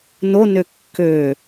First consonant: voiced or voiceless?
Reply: voiced